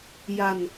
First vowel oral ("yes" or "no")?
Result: yes